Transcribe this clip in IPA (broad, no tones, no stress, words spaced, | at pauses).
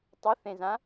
tˤʊθẽzã